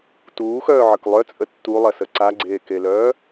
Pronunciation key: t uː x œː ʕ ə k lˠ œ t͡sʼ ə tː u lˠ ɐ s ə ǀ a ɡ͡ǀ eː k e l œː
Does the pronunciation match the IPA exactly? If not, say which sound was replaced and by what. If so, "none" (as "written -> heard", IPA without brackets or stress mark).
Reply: none